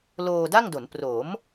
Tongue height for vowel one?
mid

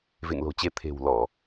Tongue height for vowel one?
mid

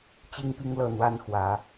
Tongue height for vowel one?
high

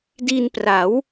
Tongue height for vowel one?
high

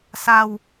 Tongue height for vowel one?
low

